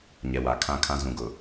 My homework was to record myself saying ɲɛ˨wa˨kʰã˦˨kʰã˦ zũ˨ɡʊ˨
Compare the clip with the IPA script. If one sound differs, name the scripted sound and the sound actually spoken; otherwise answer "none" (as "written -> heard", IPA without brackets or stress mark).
none